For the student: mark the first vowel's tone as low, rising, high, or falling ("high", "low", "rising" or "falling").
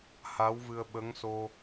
rising